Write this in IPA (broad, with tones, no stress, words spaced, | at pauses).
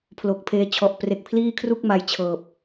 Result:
pʰlo˨˩k̚pʰeː˧t͡ɕʰɔ˨˩ʔ pre˨˩k̚pʰliː˥˩kʰru˥˩k̚ ma˧jt͡ɕʰɤː˨˩p̚